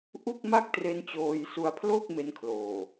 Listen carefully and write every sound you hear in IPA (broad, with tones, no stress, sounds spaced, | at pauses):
ʔ u˥˩ k̚ m a˥˩ k̚ t r e˧ n t͡ɕ oː˧ j s u˧ a̯ pʰ l o˥˩ k̚ m e˦˥ n kʰ l oː˨˩